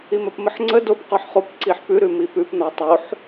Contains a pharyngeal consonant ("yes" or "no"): yes